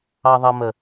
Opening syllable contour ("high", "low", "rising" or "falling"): low